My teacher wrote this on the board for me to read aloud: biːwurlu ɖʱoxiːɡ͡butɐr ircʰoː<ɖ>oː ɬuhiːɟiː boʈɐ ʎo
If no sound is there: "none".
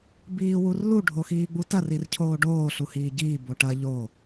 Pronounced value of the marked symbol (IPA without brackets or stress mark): ɖ